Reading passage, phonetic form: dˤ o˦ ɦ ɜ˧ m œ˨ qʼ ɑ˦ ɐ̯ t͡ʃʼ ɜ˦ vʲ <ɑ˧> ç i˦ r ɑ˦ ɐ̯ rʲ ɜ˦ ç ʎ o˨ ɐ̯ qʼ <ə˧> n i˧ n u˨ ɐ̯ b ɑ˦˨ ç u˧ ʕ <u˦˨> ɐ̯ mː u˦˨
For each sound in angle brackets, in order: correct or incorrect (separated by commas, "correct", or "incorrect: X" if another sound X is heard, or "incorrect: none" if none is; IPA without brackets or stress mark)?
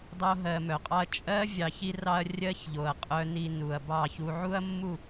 correct, incorrect: œ˧, incorrect: u˦